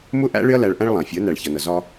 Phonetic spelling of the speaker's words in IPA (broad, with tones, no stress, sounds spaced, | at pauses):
m ʊ˦ ʔ æ̰˦ ɭ ɪ˦ ɐ̯ l æ˧ ɭ ʔ æ̃˦ ɭ lˠ æ̃˨ fʲ ʊ˨˦ ɐ̯ n æ˨ ɭ ç ʌ˨ n ʌ˨ z ɒ˧